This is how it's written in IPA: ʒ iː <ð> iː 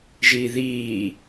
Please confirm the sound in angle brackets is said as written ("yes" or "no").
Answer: yes